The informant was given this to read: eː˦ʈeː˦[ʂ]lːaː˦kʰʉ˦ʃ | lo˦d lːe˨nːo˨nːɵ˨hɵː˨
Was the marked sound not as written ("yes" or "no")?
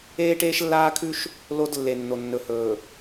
yes